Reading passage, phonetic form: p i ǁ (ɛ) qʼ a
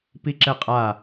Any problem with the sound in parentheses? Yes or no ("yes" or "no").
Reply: no